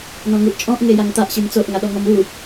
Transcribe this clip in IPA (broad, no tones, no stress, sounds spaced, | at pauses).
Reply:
n ɔ̃ ŋ u ʔ t͡ʃʼ ɔ̃ ʔ ŋ e j a ŋ t̪ a ʔ ɕ i m t͡s o ʔ ŋ a ɗ ɔ ŋ ɔ m u